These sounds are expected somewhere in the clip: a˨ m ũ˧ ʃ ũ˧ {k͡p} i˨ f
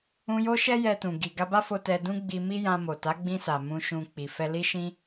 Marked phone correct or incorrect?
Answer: correct